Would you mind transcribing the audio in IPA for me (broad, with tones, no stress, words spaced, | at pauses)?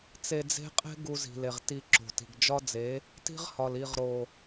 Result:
t͡se˧d͡ze̤˦ qʼe̤˦ ɡu˧zi̤˨le˨ʁ ti˧ǁo̤˨ti̤˨ɡ d͡ʒɒ˦d͡ze˨˦ | ti̤˦ʁhɒ˨l i˨ʁɾo˨